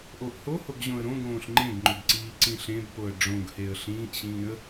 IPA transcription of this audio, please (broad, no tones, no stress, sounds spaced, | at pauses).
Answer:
ʔ o ʔ h o h o ɡ ʑ õ ə̯ ɾ õ ɡ õː ɬ ŋ͡ǃ ẽ ɡ ŋ͡ǃ ʏ b ǀ iː ǀ ĩ ɬ ẽ b p o ə̯ ɖ͡ʐ õ ɡ h e ə̯ ɬ ĩː ʔ ɕ ĩː ə̯